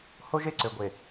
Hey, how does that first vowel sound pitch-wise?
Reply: high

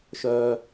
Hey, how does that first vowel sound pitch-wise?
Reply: high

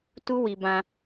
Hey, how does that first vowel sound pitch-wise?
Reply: high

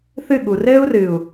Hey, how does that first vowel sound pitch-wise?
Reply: falling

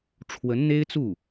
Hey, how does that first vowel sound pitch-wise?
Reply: rising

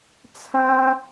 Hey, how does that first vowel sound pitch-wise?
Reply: high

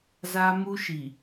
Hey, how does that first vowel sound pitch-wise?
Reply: high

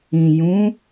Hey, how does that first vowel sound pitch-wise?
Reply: low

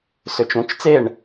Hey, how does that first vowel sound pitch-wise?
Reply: rising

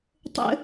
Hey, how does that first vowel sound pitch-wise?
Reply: high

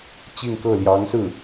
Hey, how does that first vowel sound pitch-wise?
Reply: falling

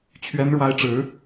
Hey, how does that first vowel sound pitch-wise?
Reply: high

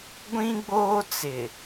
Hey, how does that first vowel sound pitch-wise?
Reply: high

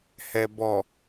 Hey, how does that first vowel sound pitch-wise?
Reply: low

